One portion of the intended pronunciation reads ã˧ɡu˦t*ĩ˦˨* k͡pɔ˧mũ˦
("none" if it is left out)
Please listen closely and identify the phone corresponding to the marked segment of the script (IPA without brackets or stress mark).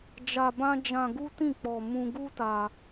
ĩ˦˨